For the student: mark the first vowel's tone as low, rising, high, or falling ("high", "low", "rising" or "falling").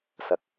rising